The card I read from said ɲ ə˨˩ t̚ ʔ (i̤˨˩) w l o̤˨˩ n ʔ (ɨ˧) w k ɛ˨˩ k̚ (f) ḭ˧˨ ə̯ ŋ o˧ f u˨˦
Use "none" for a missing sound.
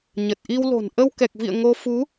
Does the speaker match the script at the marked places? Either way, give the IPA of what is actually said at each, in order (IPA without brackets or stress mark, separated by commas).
i˧, ə˧, v